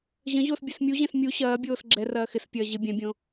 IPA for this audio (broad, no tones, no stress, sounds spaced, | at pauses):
ʑ ə̃ ʑ o s bʲ ɛ s mʲ u ʑ ɛ̃ s mʲ u ɕ ɐː bʲ oː s ɡ͡ǁ ɛ r ɐː x ɪ s pʲ ɐː ʑ ɪ bʲ ɛ̃ bʲ õ